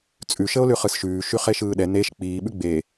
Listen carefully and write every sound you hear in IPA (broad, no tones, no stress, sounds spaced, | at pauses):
t͡sʼ ʉ ʃ ə o̯ l ʉ χ ɯ s ʃ ʉː ʃ y χ e ʃ ɯː ɗ ɛ n e ʃ k͡p iː ɓ ʉ ɡ͡b e